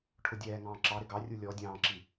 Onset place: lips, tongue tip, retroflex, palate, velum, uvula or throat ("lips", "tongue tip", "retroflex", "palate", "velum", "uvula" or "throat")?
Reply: retroflex